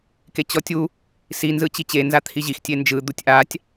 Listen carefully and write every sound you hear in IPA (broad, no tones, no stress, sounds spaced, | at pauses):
k e t͡ɕ ɔ tʲ u | s i n z ɯ t͡ɕ i t͡ɕ e n z a t̪ʰ i ʑ i x tʲ e n d͡ʒ ɯ d̪ u tʲ ʔ a tʲ